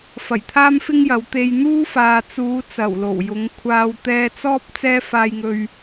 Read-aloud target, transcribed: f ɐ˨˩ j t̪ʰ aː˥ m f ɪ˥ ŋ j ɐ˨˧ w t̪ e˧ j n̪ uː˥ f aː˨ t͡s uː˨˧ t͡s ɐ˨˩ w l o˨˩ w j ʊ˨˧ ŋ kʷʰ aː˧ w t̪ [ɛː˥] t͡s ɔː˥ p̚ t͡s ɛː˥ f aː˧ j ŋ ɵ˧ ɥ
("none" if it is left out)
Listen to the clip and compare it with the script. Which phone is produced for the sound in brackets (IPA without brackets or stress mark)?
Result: ɛː˧